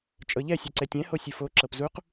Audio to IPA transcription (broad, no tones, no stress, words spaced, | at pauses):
t͡ʃʼɤʎɛ sʲɛǀɛtʲɛ̃ hosʲɨfo ǁɤpzuq